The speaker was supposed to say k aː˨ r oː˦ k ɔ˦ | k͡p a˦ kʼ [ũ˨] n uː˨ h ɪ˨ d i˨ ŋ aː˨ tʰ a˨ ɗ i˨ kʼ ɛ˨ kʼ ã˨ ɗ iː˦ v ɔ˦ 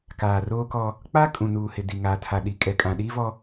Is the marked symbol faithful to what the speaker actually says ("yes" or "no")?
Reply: yes